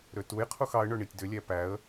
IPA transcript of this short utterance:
ɾ ø t u j qʰ u x ɑ ə̯ ɳ ɵ ɳ i tʲ d ø lʲ æ p æ ə̯

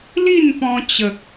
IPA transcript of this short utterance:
l i˥˧ n p ɔ̃˧ t͡ɕ ə˨ k̚

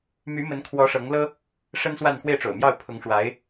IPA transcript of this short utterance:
m y˧˥ m ə˧˥ n kʰ w ɔ˧˥ ʂ ɤ˧˥ ŋ l ɤ˥ | ʂ ə˥ n s w a˥˧ n x w e˥˩ ɪ̯ ʈ͡ʂ o̰˨˩ ʊ̯ m j ɑ˥˩ ʊ̯ pʰ ʊ˧˥ ŋ ʂ w a˧˥ ɪ̯

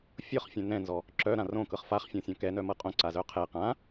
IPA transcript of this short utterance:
fʲ ɤ χ fʲ œ̃ n ɛ̃ n z ɔ | ǁ œ ɾ ã r õ k ɤ χ f a χ fʲ ɔ̃ sʲ ɔ̃ k ɛ n œ m ɤ qʼ õ ǀ a z œ qʰ ɛ q ã

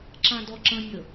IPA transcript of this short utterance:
ǁ ã d ɔ ǁ ə̃ nʲ ə

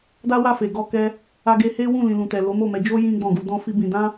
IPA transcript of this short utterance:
d a˦ w a˦˨ f e˨ ɡ ɔ˧ k ɛ˧ | a˧ ɡ e˧ h e˦ w ũ˦˨ l ĩ˨ l ũ˨ t ɛ˨ l o˨˦ m o˦˨ m ɛ˧ d͡ʒ o˦ j ĩ˦ ɡ͡b ɔ̃˦˨ ɡ u˨˦ d ɔ̃˦ f i˦ b ĩ˧ d ã˦

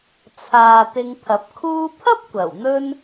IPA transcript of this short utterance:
t͡sʰ aː˨ t̪ ɪ˧ ŋ pʰ ɐ˨˥ p̚ kʰ uː˧ pʰ ɐ˥ p̚ kʷ ɐ˨˩ w n̪ ɵ˥ n

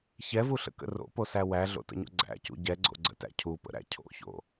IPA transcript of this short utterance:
ç ɛ v u ɬ ə̰ k ə̰ r o̰ p o s æ w æ ɮ o̰ t ə̰ ɲ o̰ ɡ͡ǀ æ̰ c ṵ ɟ ɛ ɡ͡ǀ o̰ ɡ͡ǀ ə̰ t æ̰ cʰ u p ə̰ ɾ æ̰ cʰ o̰ ç o̰

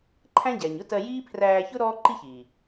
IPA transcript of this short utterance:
ǃʰ æ̃˦ ɟ æ˨ ɲ ʊ˦ t ɜ˧ j iː˦ pʰ r æː˧ ç ʊ˦ ɾ ɔː˦ ǃ i˦ ç iː˨

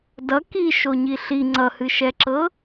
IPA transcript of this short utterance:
d ʌ k i ʃ o ɲ i ɬ i ŋ͡ǀ ʌ h ɨ ʃ ɛ ǁ ɤ

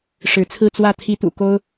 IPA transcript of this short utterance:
ʂ ɻ̩˧˥ t͡sʰ ɹ̩˥˧ t͡s w ä˥˩ t̪ʰ i˧˥ t̪ ṵ˨˩ k o˥ ʊ̯

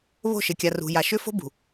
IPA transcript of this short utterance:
β o̤˦˨ ʃ ɪ˨ kʲ a˨ r ṳ˨ j a˨ ʃ ʏ˦ f o̤˦ b ṳ˨

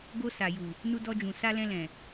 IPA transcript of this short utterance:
ɡ o˧ s a˨ j u˨ | n u˧ d ɔ˧ d͡ʒ ũ˨ s a˧ l ɛ̃˧ l ɛ̃˨

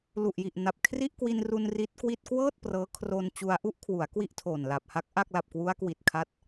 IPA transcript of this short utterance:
l u˨˩ ʔ j i˨˩ ʔ n a˨˩ p̚ kʰ r i˥˩ ʔ k w i˧ n r u˧ n r i˦˥ t̚ k w i˥˩ t̚ k w ɤː˥˩ t̚ p r ɤː˦˥ kʰ r o˧ n t͡ɕ u˧ a̯ ʔ u˥˩ ʔ kʰ w u˩˦ a̯ k w i˥˩ ʔ tʰ oː˨˩ n l a˨˩ p̚ h a˦˥ k̚ ʔ a˥˩ k̚ l a˨˩ p̚ k w u˦˥ a̯ k w i˨˩ t̚ kʰ a˦˥ t̚

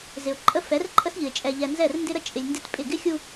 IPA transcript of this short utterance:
z ɪ˨ ʊ̯ ǃʼ ə˦ f ɛ˨˦ r ǃʼ ə˦ s ʎ ɨ˨ ɪ̯ t͡ʃʼ ɛ˨ ʎ ɛ˨ n z ɛ˦˨ r n d ɪ˦ ɾ ə˦ t͡ʃʼ ɪ˨ lʲ n d ɪ˦ t pʼ ɪ˦˨ ɡ ɪ˦ xʲ u˦

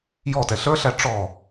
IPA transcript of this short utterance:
j ɔ t ɛ ɬ ə˞ ɬ æ ʈ͡ʂ ɔ

